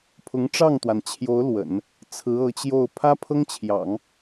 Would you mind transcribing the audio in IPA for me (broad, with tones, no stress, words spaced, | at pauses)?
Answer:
pʰʊ˧˥ŋʈ͡ʂɑ˥˩ŋt̪wa˩nt͡ɕʰjo˧˥ʊ̯ lwə̰˨˩˦n | t͡sʰɹ̩˧˥ɤ˧˥t͡ɕjo˥˩ʊ̯ pʰä˥pʰɤ˥ŋt͡ɕʰjɑ̰˨˩˦ŋ